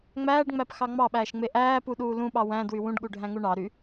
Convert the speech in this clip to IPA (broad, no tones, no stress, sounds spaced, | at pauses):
ŋ͡m æː ɖ ŋ͡m æ p x ɑ ŋ͡m ɑ ɓ æː ʃ ŋ͡m e ʔ æː p u ɗ uː l ũ ɓ ɑ w æ̃ d w y w ũ ɖ ɠ u ɖʱ æ̃ ŋ u ɳ ɑ ɾ y